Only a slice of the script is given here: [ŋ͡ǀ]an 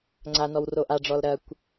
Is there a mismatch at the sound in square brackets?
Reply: no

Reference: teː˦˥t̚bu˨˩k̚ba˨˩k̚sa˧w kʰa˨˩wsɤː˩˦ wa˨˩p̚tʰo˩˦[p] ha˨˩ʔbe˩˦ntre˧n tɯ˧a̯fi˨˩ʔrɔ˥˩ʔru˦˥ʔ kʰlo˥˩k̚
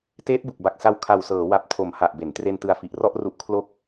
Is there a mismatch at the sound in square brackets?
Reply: yes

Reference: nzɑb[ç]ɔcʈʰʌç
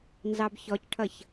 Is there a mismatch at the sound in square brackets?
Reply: no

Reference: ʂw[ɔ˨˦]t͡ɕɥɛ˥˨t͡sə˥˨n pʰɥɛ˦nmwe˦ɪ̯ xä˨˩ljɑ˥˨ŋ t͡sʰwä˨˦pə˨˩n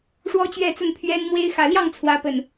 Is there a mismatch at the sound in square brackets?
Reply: yes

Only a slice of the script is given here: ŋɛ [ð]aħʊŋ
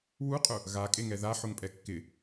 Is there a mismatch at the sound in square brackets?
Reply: no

